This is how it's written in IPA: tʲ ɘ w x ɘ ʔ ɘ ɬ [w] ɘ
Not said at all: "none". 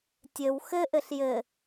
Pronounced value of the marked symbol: j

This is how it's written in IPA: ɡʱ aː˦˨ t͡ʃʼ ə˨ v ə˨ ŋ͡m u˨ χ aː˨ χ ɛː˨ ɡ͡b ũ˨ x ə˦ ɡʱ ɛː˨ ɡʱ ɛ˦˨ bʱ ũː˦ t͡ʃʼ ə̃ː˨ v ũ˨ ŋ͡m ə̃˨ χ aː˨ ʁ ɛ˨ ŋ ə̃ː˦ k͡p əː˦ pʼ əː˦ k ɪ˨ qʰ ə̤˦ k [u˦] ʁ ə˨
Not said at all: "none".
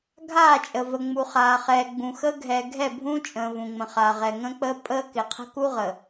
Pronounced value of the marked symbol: u˦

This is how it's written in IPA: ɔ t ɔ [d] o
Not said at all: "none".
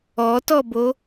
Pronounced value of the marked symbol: b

